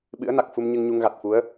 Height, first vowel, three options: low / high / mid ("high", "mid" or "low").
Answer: high